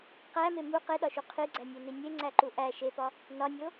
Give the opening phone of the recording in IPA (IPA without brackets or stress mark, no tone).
q